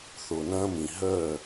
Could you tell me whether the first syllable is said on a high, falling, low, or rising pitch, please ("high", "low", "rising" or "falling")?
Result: low